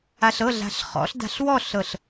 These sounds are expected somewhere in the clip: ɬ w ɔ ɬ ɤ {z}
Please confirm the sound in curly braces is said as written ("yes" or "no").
no